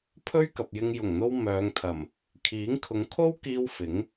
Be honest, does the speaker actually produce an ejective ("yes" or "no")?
no